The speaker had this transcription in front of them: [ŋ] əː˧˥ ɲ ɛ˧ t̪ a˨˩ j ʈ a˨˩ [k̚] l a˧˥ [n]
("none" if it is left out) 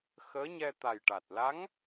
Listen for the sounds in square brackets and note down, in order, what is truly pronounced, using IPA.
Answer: x, t̚, ŋ

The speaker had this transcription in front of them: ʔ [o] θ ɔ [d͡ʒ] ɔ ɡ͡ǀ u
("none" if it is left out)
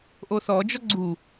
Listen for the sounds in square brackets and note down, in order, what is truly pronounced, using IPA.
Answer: o, d͡ʒ

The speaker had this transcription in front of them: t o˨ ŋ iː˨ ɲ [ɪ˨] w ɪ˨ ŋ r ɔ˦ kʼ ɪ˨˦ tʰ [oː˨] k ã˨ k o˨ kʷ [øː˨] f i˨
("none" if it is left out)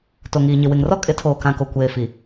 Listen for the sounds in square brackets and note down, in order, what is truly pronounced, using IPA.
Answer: ɪ˨, oː˨, eː˨

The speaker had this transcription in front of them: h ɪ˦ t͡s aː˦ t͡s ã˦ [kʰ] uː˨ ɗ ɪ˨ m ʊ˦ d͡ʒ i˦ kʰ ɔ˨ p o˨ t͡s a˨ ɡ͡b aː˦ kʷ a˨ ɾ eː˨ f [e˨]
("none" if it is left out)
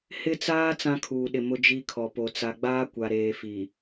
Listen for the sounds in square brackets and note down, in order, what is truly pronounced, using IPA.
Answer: kʰ, i˨

